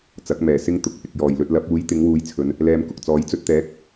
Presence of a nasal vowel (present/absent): absent